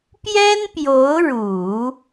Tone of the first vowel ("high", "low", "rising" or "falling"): high